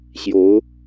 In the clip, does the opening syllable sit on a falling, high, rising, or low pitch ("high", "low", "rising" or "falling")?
rising